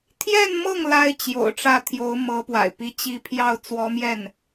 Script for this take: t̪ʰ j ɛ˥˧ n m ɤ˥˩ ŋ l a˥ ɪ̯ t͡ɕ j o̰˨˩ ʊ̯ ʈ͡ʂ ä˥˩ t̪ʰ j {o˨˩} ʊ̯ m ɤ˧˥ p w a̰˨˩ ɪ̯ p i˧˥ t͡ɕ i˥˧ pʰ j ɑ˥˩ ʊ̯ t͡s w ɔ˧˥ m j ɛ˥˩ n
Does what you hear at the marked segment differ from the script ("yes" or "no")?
yes